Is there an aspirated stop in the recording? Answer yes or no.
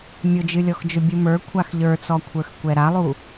yes